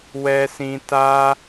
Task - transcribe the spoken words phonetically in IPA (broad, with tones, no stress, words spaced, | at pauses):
wɛ˦sĩ˦ ta˦